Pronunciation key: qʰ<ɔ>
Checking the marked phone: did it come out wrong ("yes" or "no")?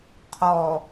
no